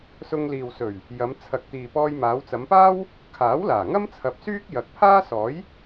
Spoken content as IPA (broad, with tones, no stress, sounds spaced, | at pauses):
s ʊ˧ ŋ l iː˨ w s ɵ˨˩ ɥ | j ɐ˨˧ m t͡sʰ ɐ˨ k̚ t̪ iː˨ p ɔː˧ j m aː˨˧ w t͡s ɐ˨˧ m p aː˥ w | kʰ aː˨˥ w l aː˨˩ ŋ ɐ˥ m t͡sʰ ɐ˨ p̚ s yː˥ k̚ j ɐ˨ k̚ pʰ aː˥ s ɔː˨˥ j